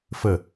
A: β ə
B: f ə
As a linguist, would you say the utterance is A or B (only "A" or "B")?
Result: B